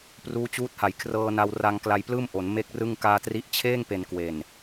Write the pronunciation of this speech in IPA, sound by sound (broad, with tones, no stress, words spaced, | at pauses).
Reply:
pruː˦˥t͡ɕuː˦˥t̚ha˩˦j kʰrɤː˧na˧wra˧ŋ kla˧jplɯː˥˩mʔo˩˦n me˥˩k̚rɯ˥˩ŋ kaː˧tri˦˥ʔt͡ɕʰeː˥˩ŋpe˩˦n kwe˨˩n